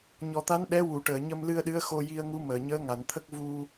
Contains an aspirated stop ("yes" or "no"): yes